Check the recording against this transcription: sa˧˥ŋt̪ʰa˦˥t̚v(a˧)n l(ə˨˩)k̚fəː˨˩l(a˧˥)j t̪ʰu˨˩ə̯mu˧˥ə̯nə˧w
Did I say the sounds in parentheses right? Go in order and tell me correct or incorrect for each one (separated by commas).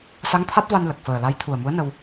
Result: correct, correct, correct